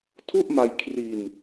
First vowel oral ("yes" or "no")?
yes